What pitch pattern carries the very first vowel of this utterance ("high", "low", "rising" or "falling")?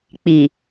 low